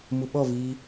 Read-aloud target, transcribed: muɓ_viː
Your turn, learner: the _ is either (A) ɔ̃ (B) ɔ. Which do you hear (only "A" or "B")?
B